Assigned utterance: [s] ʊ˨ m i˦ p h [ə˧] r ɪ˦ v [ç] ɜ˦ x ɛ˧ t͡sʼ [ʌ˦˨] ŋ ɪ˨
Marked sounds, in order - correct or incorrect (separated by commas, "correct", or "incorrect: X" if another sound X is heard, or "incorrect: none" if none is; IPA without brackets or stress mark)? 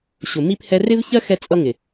incorrect: ɕ, incorrect: ɛ˧, correct, incorrect: ʌ˧